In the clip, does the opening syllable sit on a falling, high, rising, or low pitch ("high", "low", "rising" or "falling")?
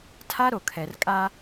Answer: high